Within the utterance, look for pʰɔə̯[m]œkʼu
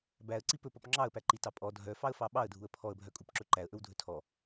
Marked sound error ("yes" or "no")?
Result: yes